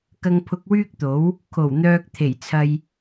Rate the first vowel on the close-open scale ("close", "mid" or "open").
open